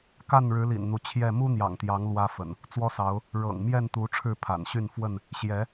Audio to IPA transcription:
k a˥˨ n ɻ ɻ̩˨˦ l ḭ˨˩ n n̪ u˨˦ t͡ɕʰ j ɛ˥˨ m u˦ n̪ j ɑ̰˨˩ ŋ t̪ j ɑ˨˦ ŋ l w ä˦ f ə̰˨˩ n | t͡s w ɔ˦ s ɑ˨˦ ʊ̯ | ɻ ɤ̰˨˩ ŋ m j ɛ˥˨ n t̪ u˨˦ ʈ͡ʂʰ ɻ̩˥˨ pʰ a̰˨˩ n ɕ y˥˨ n f w ə˥˨ n | ɕ j ɛ˨˦

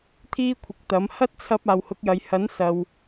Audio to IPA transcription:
t̪ʰ iː˥ kʷʰ ɪ˨ k̚ t̪ ɐ˨˥ m h ɐ˥ t̚ t͡sʰ ɐ˧ p̚ aː˨ w h ʊ˨˥ k̚ j ɐ˨ j h ɐ˨˥ n s ɐ˨ w

